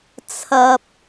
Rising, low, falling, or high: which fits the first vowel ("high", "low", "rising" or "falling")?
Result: low